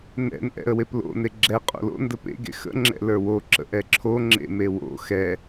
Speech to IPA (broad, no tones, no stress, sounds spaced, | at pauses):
n ɛ̰ n ʔ ɛ̰ ə̯ w e p l o̰ n e ɡ͡ǁ ɛ qʼ o̰ l o̰ n d ə p ḛ ɡ ḛ x ə̰ ŋ͡ǁ ɛ̰ l ə˞ w o ǁ ə̰ ʔ ɛ ǁʰ o ŋ͡ǁ ḛ m e w o̰ x ɛ